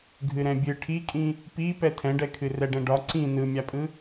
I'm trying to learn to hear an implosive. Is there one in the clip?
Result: no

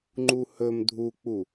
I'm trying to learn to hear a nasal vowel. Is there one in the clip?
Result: no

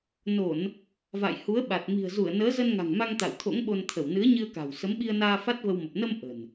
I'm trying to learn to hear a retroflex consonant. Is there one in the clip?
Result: no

